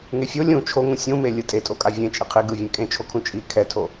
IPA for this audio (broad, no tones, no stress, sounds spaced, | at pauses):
ŋ e fʲ o lʲ ũ t͡ʃʰ o ŋ ũ sʲ ũ m e lʲ ɯ tʼ e tʼ o kʼ a vʲ ẽ t͡ʃʼ i qʰ i ɡ ɯ vʲ ẽ kʼ ẽ t͡ʃʰ o kʰ ũ t͡ʃʼ i kʰ ɛ tʰ o